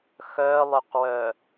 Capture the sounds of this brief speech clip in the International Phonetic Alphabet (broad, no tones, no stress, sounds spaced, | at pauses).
x œ lˠ ʏ q w œ